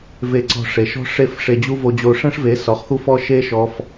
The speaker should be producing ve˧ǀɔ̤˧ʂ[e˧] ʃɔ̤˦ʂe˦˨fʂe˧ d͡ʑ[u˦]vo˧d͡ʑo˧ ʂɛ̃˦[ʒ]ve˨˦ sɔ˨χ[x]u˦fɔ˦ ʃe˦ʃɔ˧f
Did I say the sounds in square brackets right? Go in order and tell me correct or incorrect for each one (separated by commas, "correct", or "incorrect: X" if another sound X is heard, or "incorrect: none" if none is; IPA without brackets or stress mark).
incorrect: e˨, correct, incorrect: ʂ, correct